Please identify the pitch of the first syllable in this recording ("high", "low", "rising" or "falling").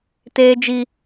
high